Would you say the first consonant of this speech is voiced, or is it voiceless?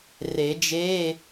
voiced